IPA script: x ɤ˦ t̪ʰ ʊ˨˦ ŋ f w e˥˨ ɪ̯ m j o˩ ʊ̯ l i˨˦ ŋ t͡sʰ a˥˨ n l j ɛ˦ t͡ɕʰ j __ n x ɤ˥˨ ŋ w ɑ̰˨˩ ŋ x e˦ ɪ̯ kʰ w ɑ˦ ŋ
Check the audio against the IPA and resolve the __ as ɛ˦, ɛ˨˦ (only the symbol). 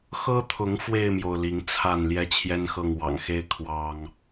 ɛ˦